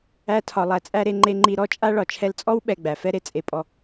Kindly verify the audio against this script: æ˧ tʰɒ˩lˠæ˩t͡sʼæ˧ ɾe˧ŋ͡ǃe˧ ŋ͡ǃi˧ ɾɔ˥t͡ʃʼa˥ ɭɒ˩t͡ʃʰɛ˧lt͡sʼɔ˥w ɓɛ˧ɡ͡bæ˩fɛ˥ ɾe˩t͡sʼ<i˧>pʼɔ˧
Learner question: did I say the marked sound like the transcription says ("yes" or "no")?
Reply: no